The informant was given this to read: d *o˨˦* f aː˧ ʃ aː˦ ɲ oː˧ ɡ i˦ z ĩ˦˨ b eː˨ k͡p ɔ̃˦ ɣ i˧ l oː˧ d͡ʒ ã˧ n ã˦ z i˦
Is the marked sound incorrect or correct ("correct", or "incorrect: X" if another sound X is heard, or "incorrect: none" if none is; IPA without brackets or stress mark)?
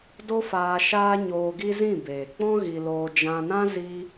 incorrect: o˦